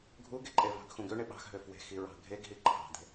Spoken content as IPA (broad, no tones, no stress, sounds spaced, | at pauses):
ɡʱ u ɡ e ǃʼ e v ɑ̤ ɡ x ũ ɡ ø ɳ e ɓ ɑ̤ x ɦ ø f w e̤ x i ɹ ɑ̤ ɡʱ e ɡ ɦ i ǃʰ ɑ̤ d̪ e̤